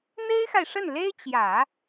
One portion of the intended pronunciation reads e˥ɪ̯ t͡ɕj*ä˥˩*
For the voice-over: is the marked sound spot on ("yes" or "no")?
no